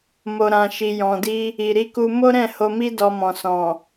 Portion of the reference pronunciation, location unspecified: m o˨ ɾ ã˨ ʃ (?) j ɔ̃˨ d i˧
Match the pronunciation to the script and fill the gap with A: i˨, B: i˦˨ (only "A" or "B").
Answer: A